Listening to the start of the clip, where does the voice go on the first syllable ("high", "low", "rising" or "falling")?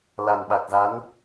low